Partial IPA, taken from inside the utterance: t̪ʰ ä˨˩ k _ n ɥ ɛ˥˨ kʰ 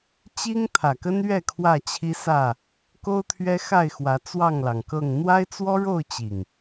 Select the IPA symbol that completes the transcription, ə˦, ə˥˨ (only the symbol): ə˦